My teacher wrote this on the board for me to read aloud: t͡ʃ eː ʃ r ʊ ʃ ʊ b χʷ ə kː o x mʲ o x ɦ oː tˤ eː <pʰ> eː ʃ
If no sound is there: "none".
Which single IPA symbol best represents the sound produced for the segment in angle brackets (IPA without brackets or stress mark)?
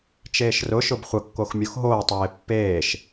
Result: pː